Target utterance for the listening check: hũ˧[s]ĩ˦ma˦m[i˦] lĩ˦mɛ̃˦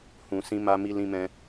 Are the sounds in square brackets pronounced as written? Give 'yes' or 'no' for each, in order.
yes, yes

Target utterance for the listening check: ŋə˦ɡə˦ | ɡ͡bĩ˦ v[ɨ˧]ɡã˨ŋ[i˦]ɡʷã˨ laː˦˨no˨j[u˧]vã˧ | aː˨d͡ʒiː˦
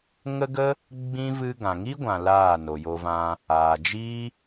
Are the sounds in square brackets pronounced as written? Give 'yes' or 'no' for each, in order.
yes, yes, no

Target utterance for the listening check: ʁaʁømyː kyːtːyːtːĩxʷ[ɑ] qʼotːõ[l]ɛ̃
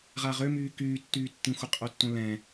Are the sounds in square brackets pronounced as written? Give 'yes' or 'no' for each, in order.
no, yes

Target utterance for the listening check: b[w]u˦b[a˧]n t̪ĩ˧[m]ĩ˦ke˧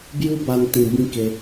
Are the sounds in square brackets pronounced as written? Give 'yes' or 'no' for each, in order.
no, yes, no

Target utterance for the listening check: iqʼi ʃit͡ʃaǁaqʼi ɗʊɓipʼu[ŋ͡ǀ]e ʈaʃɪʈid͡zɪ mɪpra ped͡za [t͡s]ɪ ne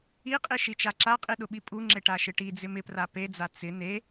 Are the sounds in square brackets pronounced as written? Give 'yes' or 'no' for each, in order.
no, yes

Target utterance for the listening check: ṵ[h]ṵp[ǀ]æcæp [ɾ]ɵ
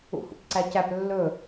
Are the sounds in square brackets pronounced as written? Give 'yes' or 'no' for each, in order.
yes, yes, no

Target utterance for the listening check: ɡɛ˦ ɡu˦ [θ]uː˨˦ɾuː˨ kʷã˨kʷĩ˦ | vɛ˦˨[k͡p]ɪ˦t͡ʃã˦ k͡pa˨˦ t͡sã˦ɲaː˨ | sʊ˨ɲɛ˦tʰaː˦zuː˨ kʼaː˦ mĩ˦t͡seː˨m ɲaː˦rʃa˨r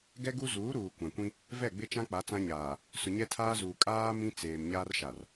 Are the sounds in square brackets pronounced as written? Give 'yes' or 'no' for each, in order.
no, no

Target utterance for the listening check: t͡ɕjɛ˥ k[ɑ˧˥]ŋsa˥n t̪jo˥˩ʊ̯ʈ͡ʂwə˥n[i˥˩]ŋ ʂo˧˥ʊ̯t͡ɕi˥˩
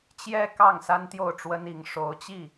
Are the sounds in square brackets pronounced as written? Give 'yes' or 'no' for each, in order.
no, no

